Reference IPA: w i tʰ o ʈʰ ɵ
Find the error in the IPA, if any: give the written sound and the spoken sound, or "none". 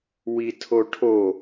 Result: ɵ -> o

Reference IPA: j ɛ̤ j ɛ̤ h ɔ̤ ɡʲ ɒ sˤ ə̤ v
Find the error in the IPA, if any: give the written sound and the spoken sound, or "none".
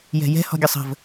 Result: none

